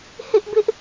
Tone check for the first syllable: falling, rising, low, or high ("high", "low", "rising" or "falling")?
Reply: high